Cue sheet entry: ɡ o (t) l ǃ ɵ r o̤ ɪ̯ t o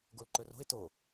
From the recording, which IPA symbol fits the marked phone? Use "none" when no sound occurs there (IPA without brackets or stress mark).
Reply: none